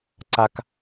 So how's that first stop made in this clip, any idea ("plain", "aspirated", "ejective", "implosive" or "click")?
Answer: click